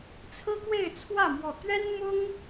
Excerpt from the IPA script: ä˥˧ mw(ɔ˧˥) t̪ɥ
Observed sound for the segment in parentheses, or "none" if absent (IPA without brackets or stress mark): ɔ˥˩